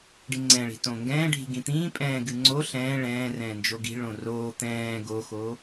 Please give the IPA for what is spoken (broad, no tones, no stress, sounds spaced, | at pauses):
ɖ i ŋ͡ǀ ɛ̃ ɭ i̤ t õ ŋ ɡ ɛ̃ː ɖʱ i̤ ɡ ĩ t̪ ĩː pʼ ɛ̃ː ɡ ɨ ŋ͡ǀ o ɬ ɛ̃ː ɭ ɛ̃ː r ɛ̃ː n d͡ʒ o ɡ i̤ ɭ õ r oː t̪ ɛ̃ː ɡ o x o